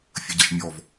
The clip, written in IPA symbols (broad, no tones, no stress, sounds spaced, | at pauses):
fʲ ə ɟ ʌ ʃ mʲ ɔ v